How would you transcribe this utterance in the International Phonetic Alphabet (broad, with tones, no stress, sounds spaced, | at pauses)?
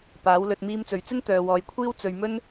p aː˨˥ w l ɵ˧ t̚ m iː˧ m t͡s ɵ˨ ɥ t͡s ɪ˥ ŋ t̪ œː˨ w ɔː˨ j kʷʰ iː˥ w t͡s ɵ˧ ɥ m ɵ˥ n